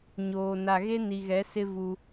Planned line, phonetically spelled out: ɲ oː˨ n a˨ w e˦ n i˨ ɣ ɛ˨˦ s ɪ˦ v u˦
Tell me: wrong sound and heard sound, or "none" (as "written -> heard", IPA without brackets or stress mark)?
w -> ɣ